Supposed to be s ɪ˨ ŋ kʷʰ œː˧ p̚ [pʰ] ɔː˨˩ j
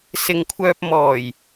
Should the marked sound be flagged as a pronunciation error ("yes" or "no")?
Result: yes